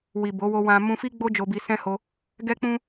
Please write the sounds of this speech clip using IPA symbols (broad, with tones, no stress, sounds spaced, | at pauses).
w i˨ b o˨˦ w o˧ w ã˦ m ũ˧ f i˦ ɡ͡b o˦ d͡ʒ o˧ b i˧ s ɛ̃˦ h o˧ | ɡ ɛ˦ k͡p ũ˦